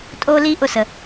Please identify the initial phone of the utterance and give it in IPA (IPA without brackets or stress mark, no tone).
tʼ